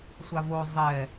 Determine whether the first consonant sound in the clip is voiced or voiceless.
voiceless